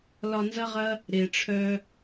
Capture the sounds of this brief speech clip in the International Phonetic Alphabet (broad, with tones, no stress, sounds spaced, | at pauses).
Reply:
l ɒ˧ n z ɐ˦ ʁ ɐ˦ | ɾ e˨ ʈ͡ʂʰ œ˦